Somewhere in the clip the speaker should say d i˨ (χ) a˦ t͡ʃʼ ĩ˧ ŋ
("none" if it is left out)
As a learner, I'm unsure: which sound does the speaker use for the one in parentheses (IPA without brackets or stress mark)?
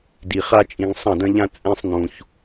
χ